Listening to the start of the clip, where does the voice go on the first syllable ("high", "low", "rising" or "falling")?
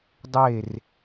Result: falling